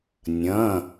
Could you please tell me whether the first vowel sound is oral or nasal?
nasal